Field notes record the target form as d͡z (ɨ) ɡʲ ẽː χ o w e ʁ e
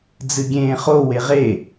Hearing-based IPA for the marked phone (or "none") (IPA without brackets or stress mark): ɨ